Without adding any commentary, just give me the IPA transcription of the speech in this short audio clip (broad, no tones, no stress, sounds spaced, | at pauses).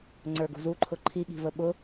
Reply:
ŋ͡ǀ ə˞ ɡ ṳ z u ǃʰ ʊ ǃʰ i ɠ i̤ v ə ɓ ʊ